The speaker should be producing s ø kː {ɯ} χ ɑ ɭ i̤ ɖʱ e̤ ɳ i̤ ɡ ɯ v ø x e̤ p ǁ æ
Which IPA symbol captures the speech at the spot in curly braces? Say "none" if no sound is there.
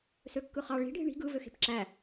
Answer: ɯ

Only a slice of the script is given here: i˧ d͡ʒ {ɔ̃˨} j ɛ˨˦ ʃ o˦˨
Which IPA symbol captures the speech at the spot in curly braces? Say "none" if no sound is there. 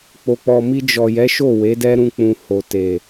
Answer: ɔ˨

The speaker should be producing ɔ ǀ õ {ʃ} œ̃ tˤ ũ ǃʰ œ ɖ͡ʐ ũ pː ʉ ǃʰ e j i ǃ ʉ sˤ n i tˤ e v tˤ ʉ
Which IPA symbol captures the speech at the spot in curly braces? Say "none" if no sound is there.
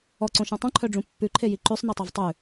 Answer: ʃ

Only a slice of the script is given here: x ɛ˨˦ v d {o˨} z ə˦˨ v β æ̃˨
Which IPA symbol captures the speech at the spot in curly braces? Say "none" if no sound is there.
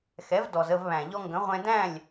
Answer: ɔ˨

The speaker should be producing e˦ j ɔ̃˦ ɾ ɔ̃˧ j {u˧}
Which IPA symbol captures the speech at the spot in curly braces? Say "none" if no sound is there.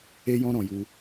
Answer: u˧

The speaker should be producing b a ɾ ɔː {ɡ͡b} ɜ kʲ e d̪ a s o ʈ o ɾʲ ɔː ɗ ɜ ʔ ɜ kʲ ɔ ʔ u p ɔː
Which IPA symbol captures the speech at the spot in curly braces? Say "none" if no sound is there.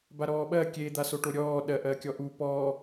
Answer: ɓ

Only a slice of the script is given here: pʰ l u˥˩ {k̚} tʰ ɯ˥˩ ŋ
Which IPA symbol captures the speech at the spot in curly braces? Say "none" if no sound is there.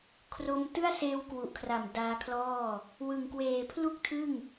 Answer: k̚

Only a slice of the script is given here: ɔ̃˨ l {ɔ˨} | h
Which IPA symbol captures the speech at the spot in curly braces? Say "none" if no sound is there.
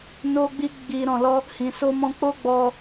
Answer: ɔ˧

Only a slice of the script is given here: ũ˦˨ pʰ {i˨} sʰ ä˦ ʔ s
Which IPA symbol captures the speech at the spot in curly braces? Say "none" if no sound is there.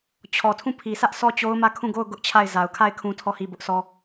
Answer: i˨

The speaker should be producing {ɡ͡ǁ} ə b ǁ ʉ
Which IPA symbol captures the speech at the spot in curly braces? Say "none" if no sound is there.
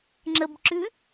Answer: ŋ͡ǁ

